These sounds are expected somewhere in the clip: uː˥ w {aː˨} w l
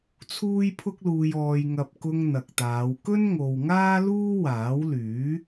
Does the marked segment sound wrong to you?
yes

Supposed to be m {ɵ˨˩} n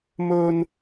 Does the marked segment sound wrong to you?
yes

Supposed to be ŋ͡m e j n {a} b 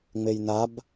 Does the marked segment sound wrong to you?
no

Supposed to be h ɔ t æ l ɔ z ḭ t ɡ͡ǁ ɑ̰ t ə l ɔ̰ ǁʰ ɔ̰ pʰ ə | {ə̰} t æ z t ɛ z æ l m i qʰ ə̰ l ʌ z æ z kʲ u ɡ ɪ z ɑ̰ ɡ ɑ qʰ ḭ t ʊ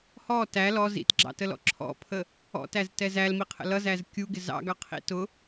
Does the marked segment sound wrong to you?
yes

